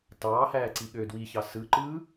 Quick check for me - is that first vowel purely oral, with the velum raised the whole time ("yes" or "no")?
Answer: yes